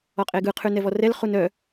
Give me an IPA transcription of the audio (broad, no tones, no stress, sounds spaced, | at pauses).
ɔ qʼ e ɡ ɯ qʰ ʉ n ɛ v ɔ r ɛ l χ u n œ